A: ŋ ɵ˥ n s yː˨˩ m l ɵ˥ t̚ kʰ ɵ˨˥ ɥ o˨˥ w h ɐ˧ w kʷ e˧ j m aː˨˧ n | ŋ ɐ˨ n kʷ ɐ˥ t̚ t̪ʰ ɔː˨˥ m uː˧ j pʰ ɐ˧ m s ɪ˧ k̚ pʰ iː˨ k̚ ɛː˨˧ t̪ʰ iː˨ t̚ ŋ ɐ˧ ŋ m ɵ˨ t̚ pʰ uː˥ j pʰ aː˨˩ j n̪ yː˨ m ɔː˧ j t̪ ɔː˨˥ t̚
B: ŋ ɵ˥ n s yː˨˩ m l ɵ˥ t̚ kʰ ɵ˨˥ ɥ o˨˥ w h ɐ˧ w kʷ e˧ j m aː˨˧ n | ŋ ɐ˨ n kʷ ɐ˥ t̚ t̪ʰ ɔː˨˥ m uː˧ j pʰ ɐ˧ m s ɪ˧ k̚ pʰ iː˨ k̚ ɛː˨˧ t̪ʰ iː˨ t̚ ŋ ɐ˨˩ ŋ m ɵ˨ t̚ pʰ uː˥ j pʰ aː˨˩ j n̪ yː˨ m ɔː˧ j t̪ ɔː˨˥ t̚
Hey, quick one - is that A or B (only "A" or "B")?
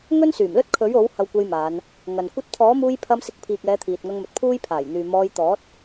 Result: A